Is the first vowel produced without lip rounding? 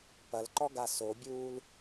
yes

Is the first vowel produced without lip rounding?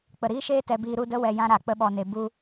yes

